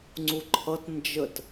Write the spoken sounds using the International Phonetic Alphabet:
ŋ͡ǀ u ǃʰ ʌ t n d͡ʒ ə t

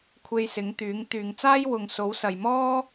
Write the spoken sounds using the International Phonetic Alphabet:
kʷʰ e˧ j s ɪ˨˥ ŋ t̪ yː˨˥ ŋ t̪ yː˨ ŋ t͡s aː˥ j w ʊ˨ ŋ s o˨˥ w s ɐ˨ j m ɔː˥

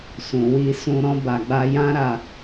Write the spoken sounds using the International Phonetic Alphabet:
s ũ˨ w i˧ s ũ˧ ɾ ɔ̃˧ b a˨ ɡ͡b a˧ j ã˦ ɾ a˧

